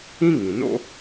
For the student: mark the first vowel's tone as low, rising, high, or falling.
high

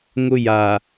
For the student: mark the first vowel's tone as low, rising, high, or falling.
high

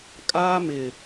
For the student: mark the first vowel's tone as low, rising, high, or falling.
high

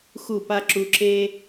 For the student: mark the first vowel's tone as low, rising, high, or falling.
falling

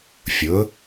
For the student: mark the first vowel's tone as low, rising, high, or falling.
rising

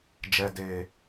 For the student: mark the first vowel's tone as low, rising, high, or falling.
low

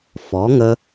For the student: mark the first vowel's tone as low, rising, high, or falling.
rising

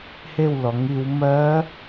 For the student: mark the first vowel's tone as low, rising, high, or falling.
falling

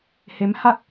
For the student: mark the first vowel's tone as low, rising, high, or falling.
rising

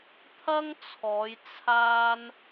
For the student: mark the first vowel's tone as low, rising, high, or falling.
high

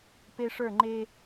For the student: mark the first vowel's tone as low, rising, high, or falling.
high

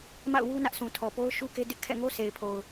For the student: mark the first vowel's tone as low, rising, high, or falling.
falling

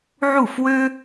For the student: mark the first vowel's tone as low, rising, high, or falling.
falling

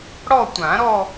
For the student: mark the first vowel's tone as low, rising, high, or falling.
falling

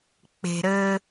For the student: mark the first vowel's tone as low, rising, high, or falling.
low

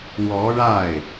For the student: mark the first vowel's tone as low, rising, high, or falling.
rising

